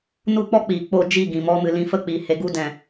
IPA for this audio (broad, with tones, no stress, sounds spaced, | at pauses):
n u˦˨ k͡p ɔ˦ k͡p iː˨ k͡p o˦˨ d͡ʒ i˦˨ ɡ ĩ˨ m ɔ˧ m ɨ˨ l ĩ˧ f ə˦ k͡p iː˨ h e˧ ɡ u˧ d ɛ̃˨